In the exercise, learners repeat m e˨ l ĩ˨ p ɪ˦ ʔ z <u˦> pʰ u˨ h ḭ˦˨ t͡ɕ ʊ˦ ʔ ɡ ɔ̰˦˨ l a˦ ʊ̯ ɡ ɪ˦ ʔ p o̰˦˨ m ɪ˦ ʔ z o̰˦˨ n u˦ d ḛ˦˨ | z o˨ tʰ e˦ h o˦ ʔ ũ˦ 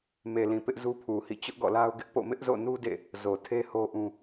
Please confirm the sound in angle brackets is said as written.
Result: yes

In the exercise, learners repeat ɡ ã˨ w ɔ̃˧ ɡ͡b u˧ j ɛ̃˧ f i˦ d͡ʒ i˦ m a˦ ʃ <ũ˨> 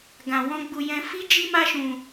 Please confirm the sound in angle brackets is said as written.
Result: no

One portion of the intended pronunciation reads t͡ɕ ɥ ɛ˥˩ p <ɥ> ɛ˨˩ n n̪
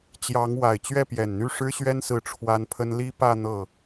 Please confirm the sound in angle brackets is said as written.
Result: no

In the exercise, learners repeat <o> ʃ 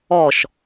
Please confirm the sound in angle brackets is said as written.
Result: no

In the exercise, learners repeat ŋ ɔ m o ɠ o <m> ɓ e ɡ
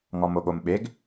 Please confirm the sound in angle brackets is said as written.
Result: yes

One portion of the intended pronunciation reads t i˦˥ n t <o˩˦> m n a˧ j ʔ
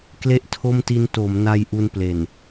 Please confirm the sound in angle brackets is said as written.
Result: yes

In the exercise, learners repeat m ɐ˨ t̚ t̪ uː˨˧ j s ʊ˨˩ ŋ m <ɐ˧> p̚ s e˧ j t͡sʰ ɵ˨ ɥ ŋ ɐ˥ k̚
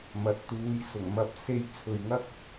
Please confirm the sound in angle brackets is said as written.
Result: yes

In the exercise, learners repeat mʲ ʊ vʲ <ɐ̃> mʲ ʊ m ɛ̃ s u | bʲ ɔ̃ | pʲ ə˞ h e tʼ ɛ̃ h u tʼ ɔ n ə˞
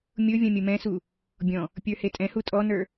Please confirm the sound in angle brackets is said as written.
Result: yes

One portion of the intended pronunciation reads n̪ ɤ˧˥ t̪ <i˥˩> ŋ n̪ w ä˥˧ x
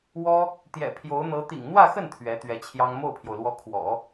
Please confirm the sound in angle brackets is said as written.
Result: no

